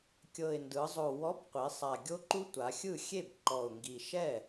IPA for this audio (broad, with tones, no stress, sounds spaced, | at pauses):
kʲ ɤ˨˩ ɪ̯ n d ɯ˩˧ zˤ o˨˩ w ɔ˨˥ b qʷ i˩˧ sˤ a˨˩ ɡʲ o˦ ǃ u˦ tʷ a˩˧ xʲ ɯ˥˩ xʲ e˥˩ b ǃ ɔ˨˩ ʊ̯ ŋ ɡ i˨˩ ʃ ɛ˥˩